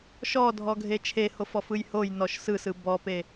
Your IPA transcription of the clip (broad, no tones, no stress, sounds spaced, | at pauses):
ʃ ɔ dʱ ɔ ɡʱ e t͡ʃʰ e h o f ɔ f ɯ j h o j n ɔ ʃ s ɯ s ɯ b ɔ p e